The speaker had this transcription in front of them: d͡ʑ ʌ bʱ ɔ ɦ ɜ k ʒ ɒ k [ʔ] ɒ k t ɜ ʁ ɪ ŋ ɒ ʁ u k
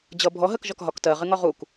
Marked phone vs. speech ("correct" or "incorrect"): incorrect